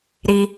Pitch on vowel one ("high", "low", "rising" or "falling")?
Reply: high